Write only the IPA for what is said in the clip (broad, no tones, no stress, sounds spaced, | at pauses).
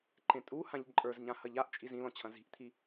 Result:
ǃ ẽ tʼ u h ã ʎ ǃʼ ə˞ z ɲ ã h ɐ ʎ a ʔ t͡ʃʼ i z ĩ l ɔ̃ t͡ɕʰ ɐ̃ z i̤ ʔ t̪ʰ i